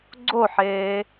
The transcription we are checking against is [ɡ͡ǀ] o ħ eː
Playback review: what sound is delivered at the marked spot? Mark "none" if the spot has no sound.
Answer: ɡ͡ǀ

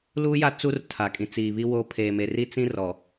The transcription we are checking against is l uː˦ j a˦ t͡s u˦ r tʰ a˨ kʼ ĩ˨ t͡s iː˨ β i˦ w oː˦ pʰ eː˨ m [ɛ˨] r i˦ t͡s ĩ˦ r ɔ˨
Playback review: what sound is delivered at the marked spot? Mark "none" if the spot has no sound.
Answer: e˨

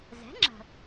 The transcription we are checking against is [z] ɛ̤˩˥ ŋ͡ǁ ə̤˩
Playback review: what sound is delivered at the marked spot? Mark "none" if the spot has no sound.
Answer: z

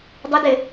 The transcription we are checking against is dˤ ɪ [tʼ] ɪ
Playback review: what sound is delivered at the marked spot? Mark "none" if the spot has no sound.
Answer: d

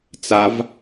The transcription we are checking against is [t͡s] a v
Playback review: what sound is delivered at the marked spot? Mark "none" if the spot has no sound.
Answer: t͡s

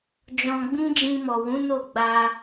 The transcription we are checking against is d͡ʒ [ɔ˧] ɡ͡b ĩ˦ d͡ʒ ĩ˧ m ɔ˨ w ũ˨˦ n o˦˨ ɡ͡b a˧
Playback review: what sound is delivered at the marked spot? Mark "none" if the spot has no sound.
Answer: ɔ̃˧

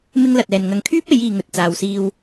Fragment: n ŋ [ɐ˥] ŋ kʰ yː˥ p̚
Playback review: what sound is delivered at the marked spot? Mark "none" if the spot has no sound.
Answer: ɐ˨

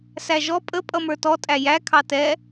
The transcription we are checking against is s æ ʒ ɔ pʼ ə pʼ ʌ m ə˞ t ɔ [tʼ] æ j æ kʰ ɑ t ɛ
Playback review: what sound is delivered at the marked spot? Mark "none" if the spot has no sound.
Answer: tʼ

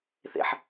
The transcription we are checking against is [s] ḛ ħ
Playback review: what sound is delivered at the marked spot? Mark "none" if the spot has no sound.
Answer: θ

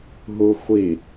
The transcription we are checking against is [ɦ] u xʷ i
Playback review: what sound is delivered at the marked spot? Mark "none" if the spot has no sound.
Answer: ɦ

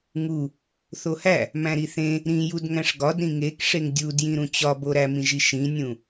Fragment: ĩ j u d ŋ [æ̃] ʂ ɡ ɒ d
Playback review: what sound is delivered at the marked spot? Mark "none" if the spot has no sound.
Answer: æ̃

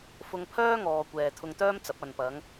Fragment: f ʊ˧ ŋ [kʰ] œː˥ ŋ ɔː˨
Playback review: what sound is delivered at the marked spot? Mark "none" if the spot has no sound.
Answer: pʰ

